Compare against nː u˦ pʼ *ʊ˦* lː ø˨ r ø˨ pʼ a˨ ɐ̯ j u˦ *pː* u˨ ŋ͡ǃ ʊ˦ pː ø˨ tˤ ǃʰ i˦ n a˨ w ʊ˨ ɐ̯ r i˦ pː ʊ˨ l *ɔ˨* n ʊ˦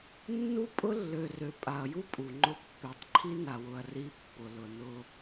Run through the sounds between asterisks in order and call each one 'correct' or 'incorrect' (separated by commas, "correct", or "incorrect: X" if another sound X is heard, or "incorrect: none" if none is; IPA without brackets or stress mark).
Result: correct, incorrect: pʼ, incorrect: ʊ˨